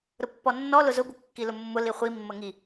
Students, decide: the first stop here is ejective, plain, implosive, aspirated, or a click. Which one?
plain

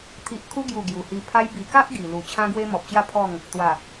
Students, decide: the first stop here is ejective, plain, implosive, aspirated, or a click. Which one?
aspirated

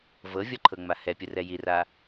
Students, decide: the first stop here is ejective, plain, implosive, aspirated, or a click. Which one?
click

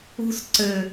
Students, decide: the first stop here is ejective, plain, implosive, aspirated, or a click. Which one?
click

